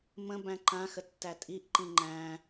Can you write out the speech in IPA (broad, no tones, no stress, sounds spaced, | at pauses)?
m ə̃ b æ̃ ǃ ã x ə tː æ tʼ i ʔ ǃ ĩ ŋ͡ǃ æ̃